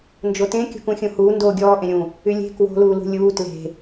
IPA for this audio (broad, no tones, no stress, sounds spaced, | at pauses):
n d͡ʒ o t ẽ kʲ ṳ k ũ xʲ ũ h uː n d oː ɡʲ ɔː ʔ ẽ ɾʲ ũ | y lʲ e̤ k w o̤ l uː l ṳ lʲ uː t l e̤